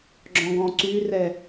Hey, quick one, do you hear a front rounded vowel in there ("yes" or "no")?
yes